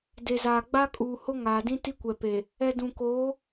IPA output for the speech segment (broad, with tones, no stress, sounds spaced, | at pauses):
d e˨ z aː˨ ɡ͡b a˦ kʼ uː˨ h ʊ˦ ŋ aː˨ d ĩ˦ t i˦ kʷ ɛ˨ p e˨ | ɛ˨ d ũ˨ k oː˨˦